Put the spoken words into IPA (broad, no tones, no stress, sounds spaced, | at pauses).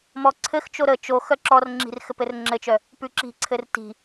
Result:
m ɔ ǀʰ ɘ x t͡ʃ o ɾ ə t͡ʃ o x œ ǁ ɔ r ŋ͡ǁ i̤ r x ɘ p ɘ r ŋ͡ǁ ɘ t͡ʃ œ | p ʉ ǁ i̤ ǀʰ ɘ r t i̤